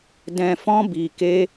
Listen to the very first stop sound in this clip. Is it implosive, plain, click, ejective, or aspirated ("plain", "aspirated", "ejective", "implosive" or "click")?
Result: plain